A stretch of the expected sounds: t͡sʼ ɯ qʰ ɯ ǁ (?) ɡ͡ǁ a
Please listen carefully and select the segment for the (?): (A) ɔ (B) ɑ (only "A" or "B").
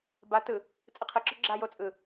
A